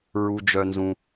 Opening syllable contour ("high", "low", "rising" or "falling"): high